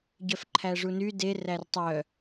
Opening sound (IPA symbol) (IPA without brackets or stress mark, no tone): ɟ